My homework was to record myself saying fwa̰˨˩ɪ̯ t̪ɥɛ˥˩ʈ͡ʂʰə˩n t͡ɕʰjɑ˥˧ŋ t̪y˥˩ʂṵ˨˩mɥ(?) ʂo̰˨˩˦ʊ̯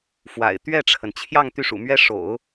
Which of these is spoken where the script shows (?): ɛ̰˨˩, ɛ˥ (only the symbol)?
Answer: ɛ˥